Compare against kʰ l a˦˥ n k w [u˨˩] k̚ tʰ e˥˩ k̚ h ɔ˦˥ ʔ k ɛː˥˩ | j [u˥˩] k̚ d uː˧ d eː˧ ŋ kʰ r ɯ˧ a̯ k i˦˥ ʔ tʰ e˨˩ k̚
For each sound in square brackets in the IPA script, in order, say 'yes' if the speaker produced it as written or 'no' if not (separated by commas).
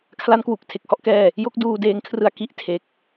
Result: yes, no